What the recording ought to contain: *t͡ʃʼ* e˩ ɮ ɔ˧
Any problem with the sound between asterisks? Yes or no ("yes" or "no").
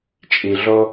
no